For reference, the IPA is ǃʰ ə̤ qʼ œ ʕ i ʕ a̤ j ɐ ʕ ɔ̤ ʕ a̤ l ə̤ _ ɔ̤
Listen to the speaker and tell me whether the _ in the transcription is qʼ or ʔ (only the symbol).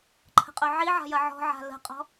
qʼ